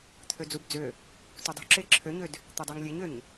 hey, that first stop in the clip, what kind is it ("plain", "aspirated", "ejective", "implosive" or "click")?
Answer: aspirated